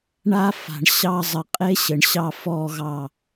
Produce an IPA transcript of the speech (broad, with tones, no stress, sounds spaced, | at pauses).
ɳ a˧ f a̤˨ ɳ ɕ ɑ˧ zˤ ə˨ qʼ e˦ ɕ ɘ˨ ɳ ɕ ɑ˧ f ɔ˨ ɣ ɑ˨